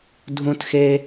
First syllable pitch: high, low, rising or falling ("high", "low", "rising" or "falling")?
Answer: high